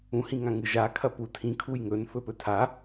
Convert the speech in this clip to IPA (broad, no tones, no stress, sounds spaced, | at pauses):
ũ h ĩ ŋ ã ŋ ɨ ʒ a kʰ ɐ p u tʰ ĩ kʰ u j ŋ ɵ n f ɵ p ɵ tʰ a